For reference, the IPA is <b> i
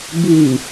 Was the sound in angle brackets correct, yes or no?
yes